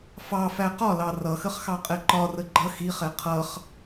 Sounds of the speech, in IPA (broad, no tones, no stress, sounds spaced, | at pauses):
f ɑ f æ q ɒ l ɑ r ʌ x ə χ x ɑ qʼ ɛ ǃ ɒ r ə ɡ͡ǃ ʌ x i χ ɛ qʰ ʌ χ